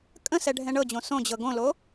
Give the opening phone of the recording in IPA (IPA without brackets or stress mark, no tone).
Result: kʼ